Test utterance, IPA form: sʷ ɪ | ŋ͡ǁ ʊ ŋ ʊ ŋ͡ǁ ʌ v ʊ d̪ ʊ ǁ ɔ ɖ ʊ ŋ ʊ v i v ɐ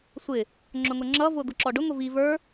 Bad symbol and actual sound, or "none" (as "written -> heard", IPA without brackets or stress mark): ɐ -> ə˞